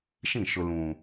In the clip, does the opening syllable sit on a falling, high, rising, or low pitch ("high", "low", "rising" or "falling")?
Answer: falling